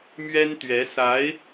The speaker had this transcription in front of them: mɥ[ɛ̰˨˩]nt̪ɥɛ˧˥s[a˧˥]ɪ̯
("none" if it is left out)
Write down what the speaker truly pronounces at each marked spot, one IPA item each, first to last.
ɛ˥, a˧˥

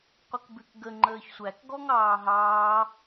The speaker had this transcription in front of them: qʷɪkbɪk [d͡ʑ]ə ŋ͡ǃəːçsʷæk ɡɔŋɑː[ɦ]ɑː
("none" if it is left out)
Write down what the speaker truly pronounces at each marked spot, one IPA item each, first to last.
ɡ, ɦ

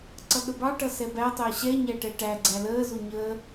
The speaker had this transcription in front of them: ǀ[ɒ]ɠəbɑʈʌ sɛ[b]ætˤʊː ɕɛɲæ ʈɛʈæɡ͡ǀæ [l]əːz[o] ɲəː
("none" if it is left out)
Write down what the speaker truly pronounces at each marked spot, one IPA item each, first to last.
ʌ, b, l, u

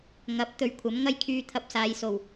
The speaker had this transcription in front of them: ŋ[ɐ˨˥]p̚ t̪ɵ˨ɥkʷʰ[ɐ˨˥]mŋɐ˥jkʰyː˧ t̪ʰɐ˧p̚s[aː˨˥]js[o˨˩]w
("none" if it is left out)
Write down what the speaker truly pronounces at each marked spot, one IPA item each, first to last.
ɐ˨˥, ɐ˨˥, aː˨˧, o˨˩

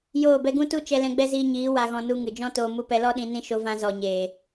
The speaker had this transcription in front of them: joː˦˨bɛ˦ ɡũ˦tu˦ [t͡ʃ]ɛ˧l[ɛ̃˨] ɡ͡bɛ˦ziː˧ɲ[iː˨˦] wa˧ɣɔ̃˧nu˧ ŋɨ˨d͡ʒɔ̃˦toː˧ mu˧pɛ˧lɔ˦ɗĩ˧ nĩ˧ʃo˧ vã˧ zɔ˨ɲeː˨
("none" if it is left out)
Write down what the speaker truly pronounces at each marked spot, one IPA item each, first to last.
t͡ʃ, ɛ̃˧, iː˨˦

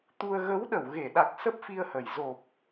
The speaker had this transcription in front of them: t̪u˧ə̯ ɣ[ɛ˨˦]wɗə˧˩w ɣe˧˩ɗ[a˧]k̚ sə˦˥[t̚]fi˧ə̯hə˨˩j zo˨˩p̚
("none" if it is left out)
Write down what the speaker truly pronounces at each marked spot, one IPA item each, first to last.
ə˨˦, a˨˩, p̚

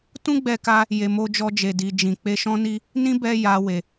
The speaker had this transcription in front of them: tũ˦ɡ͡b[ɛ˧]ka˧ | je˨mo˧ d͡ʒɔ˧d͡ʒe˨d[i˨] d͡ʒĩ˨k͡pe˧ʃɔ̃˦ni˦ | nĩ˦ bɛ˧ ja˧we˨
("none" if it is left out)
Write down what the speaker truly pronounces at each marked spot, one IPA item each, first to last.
ɛ˧, i˨

